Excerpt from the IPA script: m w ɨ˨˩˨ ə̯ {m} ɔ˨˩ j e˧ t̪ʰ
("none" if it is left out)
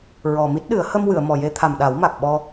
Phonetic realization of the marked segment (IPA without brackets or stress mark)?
m